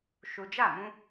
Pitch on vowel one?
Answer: low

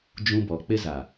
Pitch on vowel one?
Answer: high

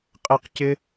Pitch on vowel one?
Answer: high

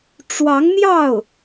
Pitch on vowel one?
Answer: rising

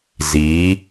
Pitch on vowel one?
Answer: rising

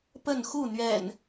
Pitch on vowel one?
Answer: falling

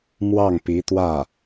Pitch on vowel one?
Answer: falling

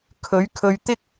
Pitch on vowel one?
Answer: rising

